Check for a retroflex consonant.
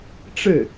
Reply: present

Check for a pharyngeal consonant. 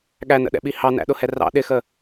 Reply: absent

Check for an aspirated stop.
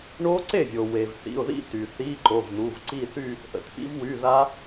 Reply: absent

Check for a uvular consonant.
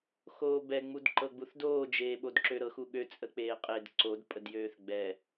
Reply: present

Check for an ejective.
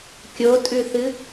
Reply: present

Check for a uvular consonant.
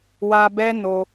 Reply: absent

